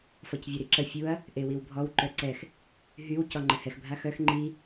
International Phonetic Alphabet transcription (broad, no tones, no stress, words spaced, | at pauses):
fɔcvʲoɾiǁə fʲuɐ̯ | ʔewiwbʱɔw ǃœǀɛx | ɦyw cɔŋ͡ǃəhɛx bʱaxœx ŋ͡ǃi